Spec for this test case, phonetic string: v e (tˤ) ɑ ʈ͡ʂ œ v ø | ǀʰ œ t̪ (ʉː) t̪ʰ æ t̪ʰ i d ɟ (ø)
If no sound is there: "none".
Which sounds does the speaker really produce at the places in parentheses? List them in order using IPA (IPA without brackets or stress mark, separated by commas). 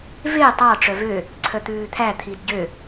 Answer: tˤ, ʉː, ø